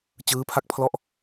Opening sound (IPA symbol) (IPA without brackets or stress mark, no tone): t͡ɕ